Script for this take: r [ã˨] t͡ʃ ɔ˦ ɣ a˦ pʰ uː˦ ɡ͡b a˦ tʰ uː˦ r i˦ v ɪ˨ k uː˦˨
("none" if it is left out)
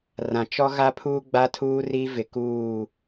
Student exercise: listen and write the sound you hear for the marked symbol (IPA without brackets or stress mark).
ã˨